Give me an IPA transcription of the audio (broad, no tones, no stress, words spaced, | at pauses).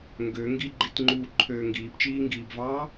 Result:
ŋɡø ŋɡiɡ͡ǃitŋ͡ǃuːǃʰøː ŋɡiːpt͡ʃiːŋɡiːbvɑː